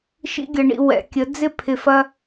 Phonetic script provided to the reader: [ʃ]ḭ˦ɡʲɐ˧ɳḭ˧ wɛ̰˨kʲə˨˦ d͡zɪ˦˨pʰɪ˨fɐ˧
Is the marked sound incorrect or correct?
correct